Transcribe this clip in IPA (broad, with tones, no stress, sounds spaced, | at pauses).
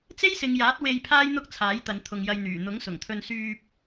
t͡s e˥ j s ɪ˨˧ ŋ j aː˨˥ t̚ w e˧ j pʰ aː˥ j n̪ ʊ˥ k̚ t͡sʰ aː˨˥ j t̪ ɐ˨˧ n t̪ʰ ʊ˨ ŋ j ɐ˧ j n̪ yː˨˩ n̪ ʊ˨˥ ŋ s ʊ˨˩ ŋ t̪ʰ ɵ˧ n s yː˧ p̚